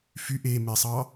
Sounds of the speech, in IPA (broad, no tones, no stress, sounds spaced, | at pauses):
f y ʔ e m e sˤ ɑ